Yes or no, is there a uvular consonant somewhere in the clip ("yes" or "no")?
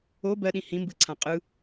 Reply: yes